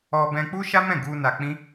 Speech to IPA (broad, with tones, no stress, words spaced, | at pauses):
ɔ˧ bɛ̃˧k͡pu˦ ʃa˦mɛ̃˦˨ ɡu˧ na˧k͡pĩ˦